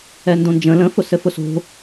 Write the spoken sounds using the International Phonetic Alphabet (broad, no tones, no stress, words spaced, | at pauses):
ɛndõnd͡ʒə̃ lə̃ fʊsɘfʊso̤